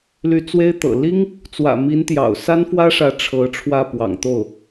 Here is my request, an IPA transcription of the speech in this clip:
l y˧˥ t͡s w e˥ ɪ̯ t̪ ɤ̰˨˩ l i˥ ŋ | t͡s w ä̰˨˩ m i˧˥ n t̪ j ɑ̰˨˩ ʊ̯ s a˥ n f w ä˥ ʂ ä˧˥ ʈ͡ʂʰ ɤ˧˥ ʈ͡ʂʰ w ä˥˩ p w ɑ̰˨˩ ŋ t̪ o˥˩ ʊ̯

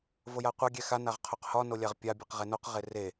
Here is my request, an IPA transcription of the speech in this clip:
v o j a qʷ a ɡʲ ɛ x a n a ʁ qʰ o q h ɒ n o lʲ a ʁ pʲ a bʲ e q ʁ e n o q ʁ e r e

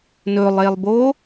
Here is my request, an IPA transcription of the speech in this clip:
n ɵ lˠ e lˠ b o

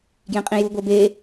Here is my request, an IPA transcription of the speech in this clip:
ɡ j ẽ qʼ ĩ j u ɡʷ e b e

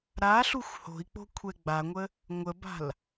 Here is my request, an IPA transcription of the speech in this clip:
ɾ a ɬ u xʷ h o̤ i̯ k͡p o̤ kʷʰ ɛ ɡ͡b a ŋʷ ə | ŋʷ ə b a̤ l

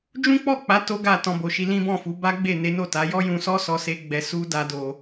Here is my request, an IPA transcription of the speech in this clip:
d͡ʒ ũ˦ k͡p ɔ˦˨ k͡p a˨˦ t o˦ ɡ a˦˨ t ɔ̃˧ b o˨ ʃ i˧ l ĩ˦ b ɔ̃˦˨ f u˨˦ b a˦ ɡ͡b e˦˨ n e˨˦ n o˦˨ t a˨˦ j ɔ˦ j ũ˧ s ɔ˦ s ɔ˧ s e˧ ɡ͡b ɛ˧ s u˦ d a˦ d o˧

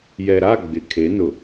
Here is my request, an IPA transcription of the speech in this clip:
j ɛ˨ ɾ a˦˨ ɡ͡b ɪ˨ kʰ e˨˦ n ʊ˨

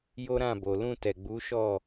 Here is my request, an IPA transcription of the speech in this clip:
j o˦ ɾ ã˦˨ b o˨ l ũ˧ t ɛ˨ ɡ͡b u˨˦ ʃ ɔ˦˨

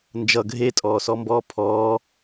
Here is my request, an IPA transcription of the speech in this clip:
n d͡ʒ ʌ ɡʱ e tʼ ɔː s ɔ m b ɔː pʰ ɔː

